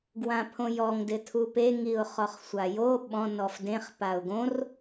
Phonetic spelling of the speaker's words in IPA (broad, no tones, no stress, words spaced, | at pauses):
ɡwãpʰõjɔŋdɪ tʰupe ŋiʊ̯χɔχsʷajo ɓɔ̃ nɔfdẽχ paʊ̯ɡõr